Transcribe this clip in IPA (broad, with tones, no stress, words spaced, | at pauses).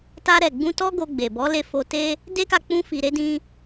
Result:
ta˧ɾɛ˨ɡ͡bũ˧ tɔ˦ ɡo˧ɡ͡be˨bɔ˨˦ le˧fo˧te˦ | de˦ka˧k͡pũ˧fi˨ ɾe˧dĩ˧